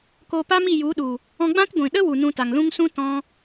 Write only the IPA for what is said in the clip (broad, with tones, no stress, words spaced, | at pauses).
koː˧pa˦mi˦˨ ju˨˦ɗu˨ | ɔ̃˧ɡ͡bã˦t ɡʷĩ˨ ɗə˦wu˨ nũ˧ta˨ŋlũ˦ŋ sũ˦ tɔ̃˧